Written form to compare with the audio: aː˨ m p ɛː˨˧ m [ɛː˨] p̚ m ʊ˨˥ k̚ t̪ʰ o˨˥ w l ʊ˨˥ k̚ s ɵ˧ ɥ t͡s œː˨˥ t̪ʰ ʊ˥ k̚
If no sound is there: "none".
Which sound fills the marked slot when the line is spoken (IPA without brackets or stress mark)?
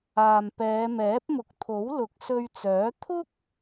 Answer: ɛː˨˥